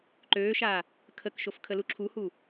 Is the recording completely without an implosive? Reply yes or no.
yes